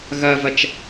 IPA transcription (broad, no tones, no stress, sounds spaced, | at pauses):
ɣ ɐ v ɐ t͡ʃ